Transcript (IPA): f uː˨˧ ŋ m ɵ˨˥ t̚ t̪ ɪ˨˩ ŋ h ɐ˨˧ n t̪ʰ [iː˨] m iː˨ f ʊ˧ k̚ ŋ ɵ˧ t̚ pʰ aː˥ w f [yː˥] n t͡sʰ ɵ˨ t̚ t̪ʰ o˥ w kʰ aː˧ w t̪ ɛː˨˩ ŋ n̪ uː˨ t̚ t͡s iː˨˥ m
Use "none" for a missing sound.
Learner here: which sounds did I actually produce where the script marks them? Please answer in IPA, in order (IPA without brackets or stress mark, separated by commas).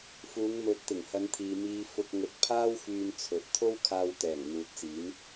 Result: iː˨, yː˧